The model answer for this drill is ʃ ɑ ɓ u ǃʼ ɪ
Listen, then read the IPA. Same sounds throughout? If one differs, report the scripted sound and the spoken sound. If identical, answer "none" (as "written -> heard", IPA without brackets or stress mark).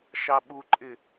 none